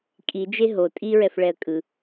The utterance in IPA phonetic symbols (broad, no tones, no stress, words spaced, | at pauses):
kʼid͡ʒe ɦo tʼiɹɛfɭɛə̯ kʼɯ